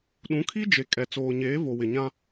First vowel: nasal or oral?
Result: nasal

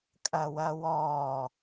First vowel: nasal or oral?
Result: oral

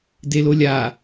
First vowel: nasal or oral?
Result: oral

